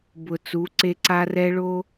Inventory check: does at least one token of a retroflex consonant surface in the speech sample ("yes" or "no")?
yes